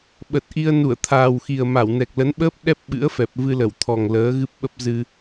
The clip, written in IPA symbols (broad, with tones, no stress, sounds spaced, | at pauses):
ɓ ə˨˩ t̚ ʔ i˧ ə̯ n u˧˩ ə̯ t̪ʰ aː˨˩ w x i˨˩ ə̯ m a˧˩ w n ɛ˨˩ k̚ l ə˨˦ n ɓ əː˦˥ p̚ ɗ ɛ˦˥ p̚ ɓ ɨ̰˧˥ ə̯ f ɛ˨˩ p̚ v ɨ˧ l ə˧˩ w t̪ʰ ɔ˨˩ ŋ l əː˨˦ ɣ ɨ˦˥ p̚ ɓ ə˦˥ p̚ z ɨ˧